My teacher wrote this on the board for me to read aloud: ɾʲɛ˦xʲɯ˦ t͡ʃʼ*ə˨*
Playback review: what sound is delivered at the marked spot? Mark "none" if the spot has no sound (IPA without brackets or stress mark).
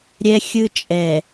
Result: ɛ˨